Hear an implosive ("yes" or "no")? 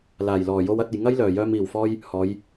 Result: no